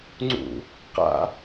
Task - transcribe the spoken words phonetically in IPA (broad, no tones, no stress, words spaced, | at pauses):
ŋ͡ǀṵ | qa̰